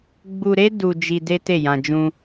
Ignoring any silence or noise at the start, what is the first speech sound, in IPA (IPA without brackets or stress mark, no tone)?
ɡ͡b